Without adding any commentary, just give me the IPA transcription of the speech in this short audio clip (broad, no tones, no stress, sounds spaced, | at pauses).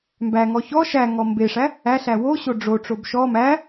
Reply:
m b æ ŋ ɔ ç ɔ ʃ æ ŋ ɔ m b e ʂ æ | æ ɬ æ w o ɕ o ɖ͡ʐ o ʈ͡ʂ o b ʃ ɔ m æ